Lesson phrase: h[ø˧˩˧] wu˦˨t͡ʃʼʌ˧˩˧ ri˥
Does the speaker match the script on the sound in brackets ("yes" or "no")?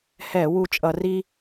no